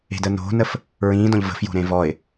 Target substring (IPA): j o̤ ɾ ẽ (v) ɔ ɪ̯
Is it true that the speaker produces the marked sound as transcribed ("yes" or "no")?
yes